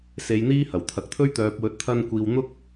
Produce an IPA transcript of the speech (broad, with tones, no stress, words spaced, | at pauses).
se˨˧jn̪iː˥ hɐ˨˩wt̪ʰɐ˨k̚t̪ʰɵ˥ɥ t̪œː˨p̚wɵ˨˥t̚ t̪ʰɐ˧nkʷiː˨w n̪ʊ˥k̚